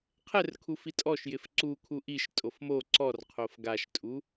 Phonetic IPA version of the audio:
qʰ ɛ r kʰ u f i tʼ ɔ ʃ j ɪ f ǀ u kʰ u ʔ i ʃ tʼ o f m o ǀ ɔ r qʰ o f ɡ a ʃ tʼ u

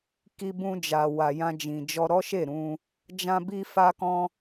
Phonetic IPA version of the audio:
k i˧ b ũ˧ d͡ʒ a˨ w a˨ j ã˧ d͡ʒ ĩ˨ d͡ʒ ɔ˧ ɾ ɔ˦ ʃ e˦˨ ɾ ũ˧ | d͡ʒ ã˧ b i˧ f a˦ k ɔ̃˦

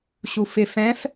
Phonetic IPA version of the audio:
ɕ u f ɪ f ɛ̃ f

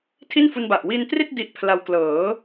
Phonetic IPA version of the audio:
tʰ i˥˩ n f u˧ n b a˨˩ ʔ w i˧ n t r i˥˩ t̚ d i˦˥ ʔ pʰ l a˧ w k l ɤː˩˦

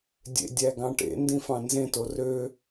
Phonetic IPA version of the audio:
dʲ ḛ dʲ æ ɡ ɑ̃ ʈ ḛ n d ĩ f ɑ̃ n z ẽ t o r ø

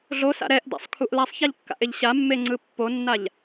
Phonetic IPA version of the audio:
ɮ o s a̰ ɾ ɛ ʔ d a̰ sˤ kʰ u ʔ l a sˤ ç a ʎ kː a̰ ʔ e ʎ ɕ a mː e ŋ͡ǀ ɯ pː o nː a ʎ

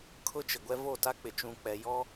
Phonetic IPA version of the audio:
kʰ ʊ˦ t͡ʃ ɪ˨ ɡʷ ɛ˦ v o˦˨ t a˦ k͡p ɪ˨ t͡ʃ ũ˨ k͡p ɛ˨ j ɔ˦

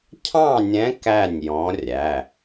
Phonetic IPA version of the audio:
cʰ ɑ̃˥˩ nʲ ɛ̃˨˥ k æ˥˩ nʲ j ɔ̃˨˥ rʲ æ˩˧˩

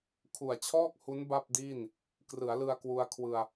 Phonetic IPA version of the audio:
kʰ u˨˩ a̯ t͡ɕʰ ɔː˥˩ k̚ h u˦˥ n b a˥˩ p̚ d iː˥˩ n | k r ɯ˩˦ a̯ l ɯ˧ a̯ k w u˧ a̯ kʰ w ɯ˧ a̯

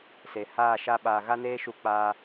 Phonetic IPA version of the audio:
s e˨ h aː˦˨ ʃ a˦ ɓ aː˧ ɣ a˦ n eː˦ ʃ u˧ k͡p aː˦

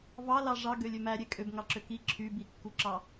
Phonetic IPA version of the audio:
v ɑ l ɑ ʐ ɑ ɡ ø lʲ ø m æ ɾʲ e kʼ ø b ŋ ɑ ǁ ø k i ǁʰ y b i kː u ǁ ɑ

